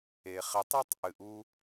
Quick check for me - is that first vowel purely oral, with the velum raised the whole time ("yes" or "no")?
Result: yes